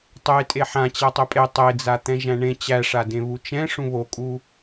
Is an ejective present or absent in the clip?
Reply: present